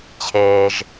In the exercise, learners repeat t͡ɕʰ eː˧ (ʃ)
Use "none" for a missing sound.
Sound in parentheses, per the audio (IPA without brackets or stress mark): ʒ